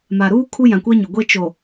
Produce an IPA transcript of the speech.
ma˨ ɾuː˦ kʰu˦jã˨kʷɛ˦ɲʊ˨ ɡʷe˦t͡ʃo˨

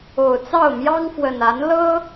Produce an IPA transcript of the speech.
o˨˩ʊ̯t͡sɑ˥˨ʊ̯ mjɑ˦ŋfwə˨˩na˨˦n lɤ˦

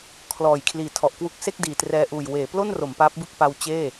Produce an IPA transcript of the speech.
kʰlɔː˨˩j kʰliː˨˩tʰɔ˨˩ʔkwu˦˥k̚ se˥˩k̚diː˨˩trɛː˧ʔuː˨˩j weː˩˦plo˥˩n ro˩˦mpaː˦˥p̚bɯ˥˩k̚ pa˧w t͡ɕeː˥˩

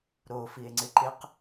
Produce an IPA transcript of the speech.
ɾofie̯ ŋ͡ǀɪǃɪq

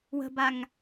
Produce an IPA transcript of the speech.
wə̤baŋ

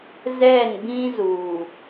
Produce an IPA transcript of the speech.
zɛ˦˨nbĩ˦zuː˨

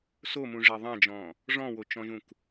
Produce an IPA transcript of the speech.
somũʐe ðˤãd͡ʒɔ̃ | ʐɔ̃wot͡ʃɔ̃ʒũk

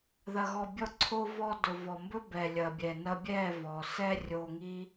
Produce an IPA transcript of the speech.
ðɐ˨ɣɔ˨bʲɔ˧ǀʰo˧ vɔ˧ dʊ˨vɔ˨mbɵ˦ bɛ˨lʲɐ˨bʲɛ˨ nɐ˧bʲɛ˦˨vɔ˨sɛ˦ rʲo˧ŋi˦

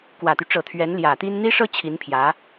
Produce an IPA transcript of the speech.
kwä˨˩t̪y˦ʈ͡ʂɤ˨˩ t̪ʰɥɛ˧˥n ljä˨˩t̪i˥n n̪i˥ʂɤ˥ t͡ɕʰi˧˥npʰjä˧˥

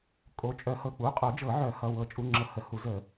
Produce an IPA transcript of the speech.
kʼo˩˧˩t͡ʃʼœ˨˩˦ hɤ˩˧˩k͡pu˩˧˩qʼo˨˩˦ d͡ʒɤ˨˩˦ ʕœ˨˩˦hʌ˩˧˩ wɤ˨˩˦t͡ʃʼu˩˧˩ŋ͡ǁɤ˨˩˦hə˩˧˩ hu˨˩˦zə˨˩˦

